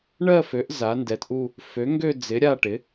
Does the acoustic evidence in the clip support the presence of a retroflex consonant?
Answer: yes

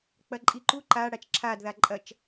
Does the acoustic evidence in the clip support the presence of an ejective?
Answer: yes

